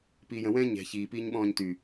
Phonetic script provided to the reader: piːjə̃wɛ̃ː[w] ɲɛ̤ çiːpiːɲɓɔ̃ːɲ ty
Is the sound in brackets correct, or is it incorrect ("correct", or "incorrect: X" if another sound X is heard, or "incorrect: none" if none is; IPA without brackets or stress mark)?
incorrect: none